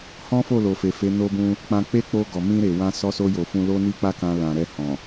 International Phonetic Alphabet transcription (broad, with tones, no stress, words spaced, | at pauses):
hɔ̃˦fo˦˨lo˨ fe˨fe˨˦ no˦bũ˦ | k͡pã˧k͡pe˦k͡po˧ɡɔ˨ mĩ˧ɾe˨wã˧ sɔ˧so˧jo˨ fũ˧lo˦ ni˦k͡pa˦kã˧ lã˨ɾɛ˧ hɔ̃˨